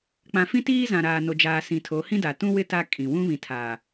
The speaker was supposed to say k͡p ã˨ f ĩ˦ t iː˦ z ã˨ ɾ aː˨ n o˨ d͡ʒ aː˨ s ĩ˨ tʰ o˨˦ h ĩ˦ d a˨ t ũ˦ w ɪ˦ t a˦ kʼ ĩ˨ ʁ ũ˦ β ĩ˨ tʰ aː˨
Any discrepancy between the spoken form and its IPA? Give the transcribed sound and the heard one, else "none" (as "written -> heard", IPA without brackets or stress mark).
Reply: ʁ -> w